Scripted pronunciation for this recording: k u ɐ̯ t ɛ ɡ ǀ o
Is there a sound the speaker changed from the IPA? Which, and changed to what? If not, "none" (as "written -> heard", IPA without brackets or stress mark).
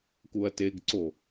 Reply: ɛ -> e